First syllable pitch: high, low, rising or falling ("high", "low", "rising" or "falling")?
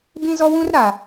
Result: high